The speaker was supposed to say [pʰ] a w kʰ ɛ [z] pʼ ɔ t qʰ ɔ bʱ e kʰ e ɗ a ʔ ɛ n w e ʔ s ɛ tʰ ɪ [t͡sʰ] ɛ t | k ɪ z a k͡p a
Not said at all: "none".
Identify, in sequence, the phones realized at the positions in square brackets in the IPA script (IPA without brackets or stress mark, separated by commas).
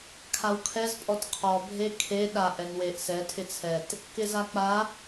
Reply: kʰ, z, t͡sʰ